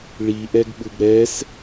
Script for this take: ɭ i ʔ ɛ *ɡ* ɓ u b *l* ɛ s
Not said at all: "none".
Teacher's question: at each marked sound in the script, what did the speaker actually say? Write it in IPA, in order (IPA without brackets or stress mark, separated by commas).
ɡ, ɾ